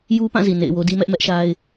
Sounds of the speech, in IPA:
j u˦ p ã˦˨ z i˨ n ḛ˦˨ ɪ̯ w o˦ d i˦ m ɛ˦ ʔ m ɛ˦ ʔ ʃ a˦ ɪ̯

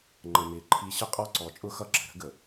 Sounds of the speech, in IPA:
ŋ͡ǃ ə˨ m ɪː˨ ǃʰ i˨ ɕ ə˦ qʼ ɔ˦˨ ǀ ɔ˨ t͡ʃʼ ʊ˦ x ʌ˦ ǁ ə̤˨ ɾ ə̤˦ ɡ ə˨

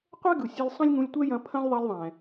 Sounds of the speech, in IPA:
qʷ ɛ˥ ɡ ɯ˩ sʲ ɘ˧ lʲ sˤ ɐ̃˥ lʲ ŋ ũ˧ lʲ tʷ ɛ˥ j ɐ̃˧ pʰ ɐ̃˥ lʲ ðˤ ɛ˧ lʲ ðˤ ɛ̃˩

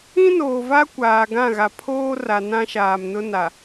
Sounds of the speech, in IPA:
ĩ˦ n oː˨ v a˦ kʷ aː˨ ɡ ã˦˨ ɣ a˨ pʰ oː˦ r a˨ n ã˦ ʃ aː˨ m n ʊ˦ n a˨

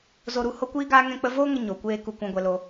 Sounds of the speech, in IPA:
z o˧ ɾ u˧ h o˦ kʷ iː˦ ɡ aː˦ ŋ ɛ̃˦ k͡p ə˦ v oː˦ ŋ ə˧ ɲ o˨ kʷ eː˧ k u˦ kʷ ã˦ ɡʷ ɛ˦ l o˦

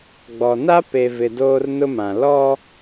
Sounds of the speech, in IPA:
ɡ͡b ɔ˨ n a˦ p e˨ v ɪ˨ d oː˦ r n ʊ˦ m ã˨ l ɔ˦

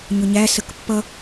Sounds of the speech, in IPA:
ɲ ʊ ɲ æ s ə k pː ʌ

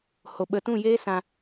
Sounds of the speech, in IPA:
h o˨ ɓ ə˧ t ũ˦˨ j eː˦ s ã˨

